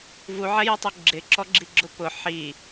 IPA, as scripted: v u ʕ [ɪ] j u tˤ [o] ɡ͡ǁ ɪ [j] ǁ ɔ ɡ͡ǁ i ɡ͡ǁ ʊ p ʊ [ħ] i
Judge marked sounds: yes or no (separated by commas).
no, yes, no, yes